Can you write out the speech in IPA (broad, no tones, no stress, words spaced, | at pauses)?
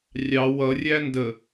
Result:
rʲɑ wʌ rʲændə